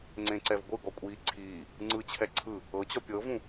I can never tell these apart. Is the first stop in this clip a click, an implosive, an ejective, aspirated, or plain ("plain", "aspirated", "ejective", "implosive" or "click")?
click